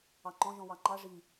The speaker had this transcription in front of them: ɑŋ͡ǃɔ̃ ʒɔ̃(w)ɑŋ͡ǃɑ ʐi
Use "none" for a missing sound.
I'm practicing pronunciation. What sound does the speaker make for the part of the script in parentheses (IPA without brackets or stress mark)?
w